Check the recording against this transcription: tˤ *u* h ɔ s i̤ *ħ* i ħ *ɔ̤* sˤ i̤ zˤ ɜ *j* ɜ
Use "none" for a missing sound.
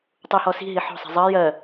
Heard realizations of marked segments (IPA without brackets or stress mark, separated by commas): u, ɦ, ɔ̤, j